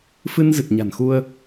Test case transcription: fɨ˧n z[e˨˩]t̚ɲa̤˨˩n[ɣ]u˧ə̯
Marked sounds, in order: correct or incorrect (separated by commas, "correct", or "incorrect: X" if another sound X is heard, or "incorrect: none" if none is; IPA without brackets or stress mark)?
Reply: incorrect: ɨ˨˩, incorrect: x